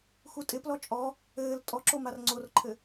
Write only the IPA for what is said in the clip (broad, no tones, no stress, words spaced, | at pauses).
xutʼɪplɔ t͡ʃʼɔ | ɘːl tʼɔǁo marŋ͡ǀorǃʰɘ